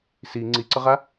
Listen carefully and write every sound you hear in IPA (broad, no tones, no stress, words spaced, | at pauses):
si ŋ͡ǀiǀʌʁa